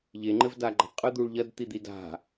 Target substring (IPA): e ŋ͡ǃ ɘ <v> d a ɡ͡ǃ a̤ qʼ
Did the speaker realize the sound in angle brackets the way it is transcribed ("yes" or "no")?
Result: yes